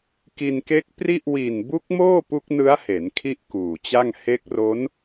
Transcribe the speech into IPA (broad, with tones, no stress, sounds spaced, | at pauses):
k i˧ n k e˦˥ k̚ p r i˥˩ ʔ w i˨˩ n b u˦˥ k̚ m oː˥˩ p u˦˥ k̚ n ɯ˦˥ a̯ h e˩˦ n kʰ i˥˩ ʔ k uː˨˩ t͡ɕ a˥˩ ŋ h e˦˥ k̚ r o˦˥ n